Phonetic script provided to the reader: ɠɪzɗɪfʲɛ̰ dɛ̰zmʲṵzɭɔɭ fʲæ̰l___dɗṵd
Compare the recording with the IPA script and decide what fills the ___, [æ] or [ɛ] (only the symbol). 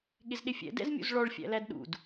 æ